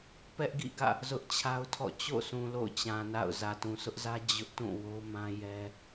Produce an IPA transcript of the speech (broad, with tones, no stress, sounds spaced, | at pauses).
p ɛ˦ ʔ ɡ ḭ˦˨ ɡ ä̰˦˨ | z ʊ˦ ʔ t͡ɕʰ a˦ ʊ̯ tʰ ɔ̰˦˨ t͡ɕ o̰˦˨ sʰ ũ˨ l o̰˦˨ ʊ̯ t͡ɕ ã˨ n a̰˦˨ ʊ̯ z ä˨ t ũ˨ s ʊ˦ ʔ z ä˦ d͡ʑ ʊ˦ ʔ t ũ˦˨ w o˦ m ã˦ j ɛ˦